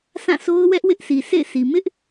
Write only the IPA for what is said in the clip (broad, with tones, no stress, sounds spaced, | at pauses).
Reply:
sʰ ã˦˨ sʰ o˦ ʊ̯ w ɛ˦ ʔ w ɪ˦ ʔ sʰ i˨ s ḛ˦˨ ɪ̯ sʰ i˨ m ɪ˦ ʔ